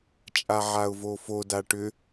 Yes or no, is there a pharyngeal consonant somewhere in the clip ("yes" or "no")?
yes